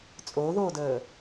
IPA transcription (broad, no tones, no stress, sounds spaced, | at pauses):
t͡sʼ oː ð oː d əː